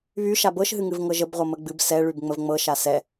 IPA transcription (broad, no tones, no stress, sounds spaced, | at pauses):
β y ʃ a b ɤ ʃ ɦ ɨ ŋ ɨ v ŋ ɤ ʒ ə b ʁʷ ɤ m ə ɡ͡b ɨ b s ɛ ɭ y b ŋ͡m ə v ŋ͡m ɤ ʃ a s ɛ